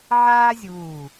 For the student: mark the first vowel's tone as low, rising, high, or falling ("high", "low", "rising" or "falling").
high